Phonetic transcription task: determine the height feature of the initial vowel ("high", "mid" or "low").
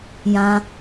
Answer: low